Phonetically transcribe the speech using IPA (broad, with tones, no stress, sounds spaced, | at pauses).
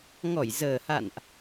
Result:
ŋ ɔ˧˩ j z əː˨˩ h a̰˧˨ n ʔ